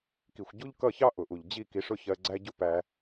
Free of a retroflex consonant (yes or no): no